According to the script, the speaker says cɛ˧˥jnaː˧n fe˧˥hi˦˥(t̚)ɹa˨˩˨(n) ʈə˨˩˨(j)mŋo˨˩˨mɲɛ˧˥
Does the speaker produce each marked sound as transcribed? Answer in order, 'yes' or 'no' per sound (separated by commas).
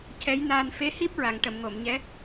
no, no, no